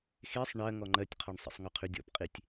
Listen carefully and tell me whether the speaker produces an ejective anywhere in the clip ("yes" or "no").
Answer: yes